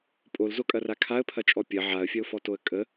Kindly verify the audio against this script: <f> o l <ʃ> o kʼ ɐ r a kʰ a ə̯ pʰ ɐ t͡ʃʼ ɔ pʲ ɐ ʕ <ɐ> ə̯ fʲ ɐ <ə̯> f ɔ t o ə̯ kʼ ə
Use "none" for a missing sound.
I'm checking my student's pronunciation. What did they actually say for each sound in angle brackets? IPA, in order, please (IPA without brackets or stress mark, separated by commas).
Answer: pʼ, z, a, ʊ̯